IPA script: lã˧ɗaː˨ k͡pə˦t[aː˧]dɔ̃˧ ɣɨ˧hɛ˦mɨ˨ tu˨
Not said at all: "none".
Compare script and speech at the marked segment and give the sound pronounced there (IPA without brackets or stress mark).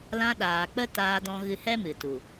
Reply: aː˧